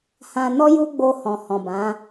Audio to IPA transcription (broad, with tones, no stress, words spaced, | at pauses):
hã˨nɔ˧ ju˦ɡ͡bo˧ hɔ̃˨hɔ̃˨bã˨˦